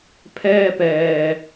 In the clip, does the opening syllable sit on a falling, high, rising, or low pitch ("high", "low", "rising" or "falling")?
high